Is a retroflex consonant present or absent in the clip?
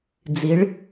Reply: present